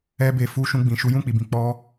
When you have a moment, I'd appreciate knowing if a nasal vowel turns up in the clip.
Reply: yes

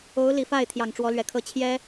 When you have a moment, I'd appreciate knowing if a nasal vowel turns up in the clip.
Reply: no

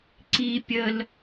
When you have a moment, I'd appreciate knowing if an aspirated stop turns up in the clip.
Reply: no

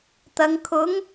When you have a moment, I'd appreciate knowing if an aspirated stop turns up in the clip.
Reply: yes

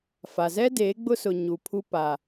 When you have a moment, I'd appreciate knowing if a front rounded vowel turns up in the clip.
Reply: no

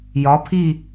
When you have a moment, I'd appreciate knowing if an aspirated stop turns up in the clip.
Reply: yes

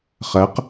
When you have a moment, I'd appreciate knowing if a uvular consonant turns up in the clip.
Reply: yes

